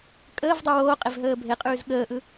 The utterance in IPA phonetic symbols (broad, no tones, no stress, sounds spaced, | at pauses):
kʼ əː v dˤ ʉ w oː qʼ e v ɦ əː bʱ e qʼ ʉː z ɠ əː ʔ ɯ